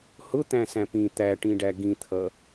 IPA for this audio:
h ʊ t̪ æ̃ s æ̃ p ĩ t̪ æ ʈ ĩ ɖ æ ɡ ĩ t̪ʰ ʌ

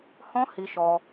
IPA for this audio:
h ɔ̃˦ h i˧ ʃ ɔ˧

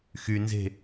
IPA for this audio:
x y n z e̤

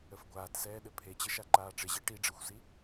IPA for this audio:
ə f ɡʷ aː t s ɛː ɗ ɘ pʰ e t͡ɕ ɘ ʃ a ǃ aː ʈ͡ʂ ɪ ʑ i ʈ i ɖ͡ʐ ɘ xʷ s i

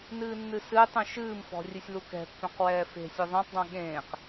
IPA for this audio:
n ɨː nː ɨ s ɨː tˤ ũ ʃ ɨː m f ɔ̤ rʲ ɨ sʲ l u k ɛ̤ pː œ̃ q w ɛː f e̤ sʲ ɯ ðˤ ẽ tˤ dˤ ũ ɠ ẽː q

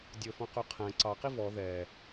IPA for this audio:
dʲ ɵ f ɔ̃ q ʉ qʰ æ̃ ǀ ɑ q i v ɔ ð ɛ

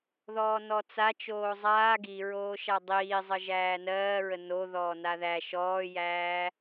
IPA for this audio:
ð ɔː n ɔ t͡s a t͡ʃ oː zˤ aː ɡ i ɹ oː ʃ a dˤ iː zˤ ə ʒ æː n ɜː ɹ ə n o ð ɔː n a ð æ ʃ ɔː j æː

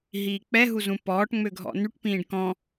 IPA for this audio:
ɦ iː k͡p ɛ ɦ u z ũ p ɔː ʈ ŋ͡m ø ɡʱ ɔ̰ n y ʈ p ĩː ɖ k ɔ̃

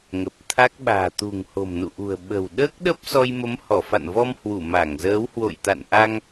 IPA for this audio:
ŋ ə˨˩ p̚ t̪ʰ a˦˥ k̚ ɓ a̤ː˨˩ t̪ ṳ˨˩ ŋ h o̤˨˩ m n ṵ˧˨ ʔ ṳ˨˩ ə̯ ɓ ə̤˨˩ w ɗ əː˦˥ k̚ ɗ ə˦˥ p̚ s ɔ˧ j m ə˨˦ m h ɔ˧˩ f a̰˧˨ n v ɔ˧ m h w u˧˩ m a˧˩ ŋ z əː˨˦ w h w o̰˧˨ j t̪ a̰˧˨ n ʔ a˧ ŋ

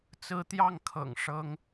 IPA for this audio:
t͡s ɹ̩˥ t̪ j ɑ˥˩ ŋ kʰ ɤ̰˨˩ ŋ ʂ ɤ˥ ŋ

